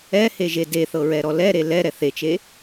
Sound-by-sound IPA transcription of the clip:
ɛ h e ʒ e d e θ ɤ ɹ ɛ ɾ ɔ l ɛ ɾ e l ɛ ɾ ɛ θ e t͡ʃ e

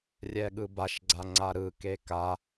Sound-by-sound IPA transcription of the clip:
rʲ ɛ ɠ ɯ b a ʃ ɡ͡ǀ a ŋ͡ǀ a ɾ ɯ k e k a

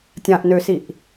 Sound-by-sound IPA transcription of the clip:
tʲ ã ʔ n ø s i ʔ

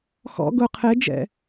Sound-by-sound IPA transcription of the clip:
x ɔ̰ ɡ ʊ qʰ e d͡ʒ ɛ̰

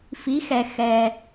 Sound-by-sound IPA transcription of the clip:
f i˧˥ x ɛ˧ x ɛ˧

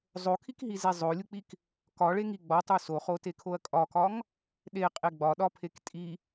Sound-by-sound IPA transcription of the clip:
zˤ o kʰ i k ɦ i z e zˤ o lʲ u k͡p i k | k ɒ ɭ e ŋ i ɡ͡b ɒ tˤ u s o χ o t e kʰ o ɐ̯ kʼ ɒ k ɒ ŋ | ɗ e qʼ e ɡ͡b ɒ ɗ ɒ pʰ e k tʼ i

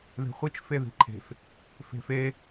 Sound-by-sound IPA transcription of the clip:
ð e̤ χʷ i t͡ʃ f e ð i̤ ǃʰ e̤ f | f e̤ f e

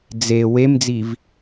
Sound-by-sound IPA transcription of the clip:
d͡z e w e m d͡z i v

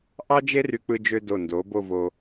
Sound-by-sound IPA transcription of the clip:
ʔ ɑ˥ d͡ʒ e˥ r y˧ k͡p ɯ˧ d͡ʒ ø˧ d o˧˩ n d o˩˧ b o˥˧ v o˧

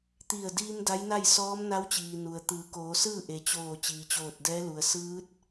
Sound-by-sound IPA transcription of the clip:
t̪ i˧˩ ə̯ d iː˧ m d a˧˥ j n a˥˨ j s ɔː˧˥ m n a˧˥ w t͡ɕ iː˩ n u˩ ə̯ t̪ ɯː˩˧ k oː˩˧ s ɯː˥˨ ʔ e˩ t͡ɕ oː˧˩ t͡ɕ iː˩ t͡ɕ oː˧˩ t̚ d ɛː˧˥ l u˩ ə̯ s ɯː˧˥ t̚

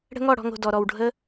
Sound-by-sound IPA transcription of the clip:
ɽ ə̤˦ ŋ ɔ˦˨ ɽ ɔ̤˧ ŋ o̤˨ d ɔ˨ ɾ ɔ˨ w ɖʱ ə˦

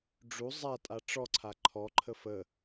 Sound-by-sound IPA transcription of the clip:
ɖ͡ʐ u zˤ a tʼ a ʈ͡ʂ ɔ ǀʰ a ǃʰ ɔ ǃʰ ə f ə

